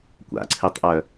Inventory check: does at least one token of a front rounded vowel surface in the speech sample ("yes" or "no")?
yes